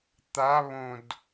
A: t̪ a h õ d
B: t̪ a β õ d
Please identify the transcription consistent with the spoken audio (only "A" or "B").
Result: B